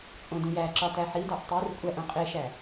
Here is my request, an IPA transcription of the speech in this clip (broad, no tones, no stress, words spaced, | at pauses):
t͡sʼõdũjæǁɒ tæħidæʔ tˤir kʷʼæʔõ qʼeʃæ